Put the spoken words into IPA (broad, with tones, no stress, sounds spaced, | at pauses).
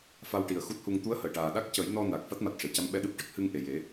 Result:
f a˧ w ʈ i˨˩ ə̯ x u˦˥ t̚ h u˧ ŋ t̪ u˧˥ ə̯ h əː˨˩˨ ʈ aː˨˩ ɗ a˦˥ k̚ c ə˨˩˦ j n ɔ˧ n a˨˩ k̚ f a˦˥ t̚ m a˨˩ t̚ ʂ e˨˩˨ c a˧˥ m ɓ ɛ˧ ɗ ɨ˦˥ p̚ ʈ ə˦˥ k̚ h ɨ˧ ŋ ʔ e˨˩ j e˨˩˦